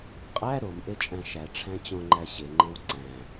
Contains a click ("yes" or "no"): yes